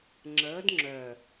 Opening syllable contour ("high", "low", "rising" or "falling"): rising